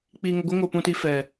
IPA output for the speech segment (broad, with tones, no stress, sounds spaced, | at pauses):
k͡p i˧ ŋ ə˧ ɡʷ e˦ ŋ o˧ p ũ˧ t i˧ f ɛ˨